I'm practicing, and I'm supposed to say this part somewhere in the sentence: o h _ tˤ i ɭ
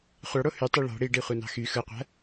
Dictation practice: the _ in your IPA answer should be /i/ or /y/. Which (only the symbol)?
y